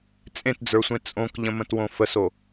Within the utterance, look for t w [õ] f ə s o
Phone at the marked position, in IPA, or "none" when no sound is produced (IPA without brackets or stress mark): õ